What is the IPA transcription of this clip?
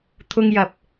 t̪ʰ ʊ˥ ŋ j ɐ˧ p̚

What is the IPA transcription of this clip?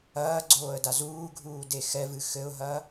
ɐː ɡ͡ǀ oː ə̯ d a z uː ɡʱ uː d e x ɛ v ɨ x ɘ ʊ̯ ɦ ɐ

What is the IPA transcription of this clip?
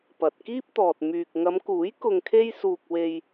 p ɐ˨ t̚ k iː˥ p̚ t̪ ɔː˨ t̚ m yː˨ k̚ ŋ ɐ˨˧ m k uː˨˥ j k ʊ˧ ŋ kʰ e˥ j s uː˧ k̚ w e˧ j

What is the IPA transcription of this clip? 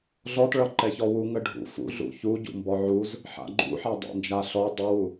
ɮ ɔ t ɭ ʌ ǃ ɛ ç ɔ w u ŋ ə ɖʱ ṵ f ṵ ɮ ṵ ç u ɟ ṵ m b ɔ ʕ u z | ħ a̰ ɡ͡ǃ ṵ ħ a dˤ ɛ̰ n d͡ʒ a ɬ ɔ dˤ u w u

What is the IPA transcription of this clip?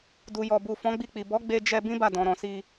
d u˨ j ɔ˨ b u˨ f ɔ̃˨˦ ɡ͡b i˧ k͡p i˨ b ɔ˨˦ ɡ͡b e˧ d͡ʒ ɛ˧ b ĩ˦ b a˦˨ d ɔ̃˨ ɾ ɔ̃˨ s i˧

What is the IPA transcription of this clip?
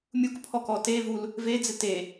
mʲ u k pʰ ɔ k ɔ t e v u l | v e d͡z ɪ t e

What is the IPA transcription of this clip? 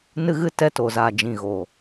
n ɨ˦ ɣ ɨ˦ t ɛ˧ t o˨ z a˨ d͡ʒ ĩ˨ ɣ o˨

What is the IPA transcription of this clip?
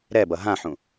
ɾ ɛ b ʌ ɦ ã ħ ũ

